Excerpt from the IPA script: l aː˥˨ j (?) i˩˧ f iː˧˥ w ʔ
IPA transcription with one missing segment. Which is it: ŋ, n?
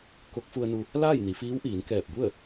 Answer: n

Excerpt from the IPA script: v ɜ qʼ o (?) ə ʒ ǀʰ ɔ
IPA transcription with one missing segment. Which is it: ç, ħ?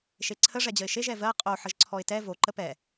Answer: ħ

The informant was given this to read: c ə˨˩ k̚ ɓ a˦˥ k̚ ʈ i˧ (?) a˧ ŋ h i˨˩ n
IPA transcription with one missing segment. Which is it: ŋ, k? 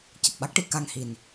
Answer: k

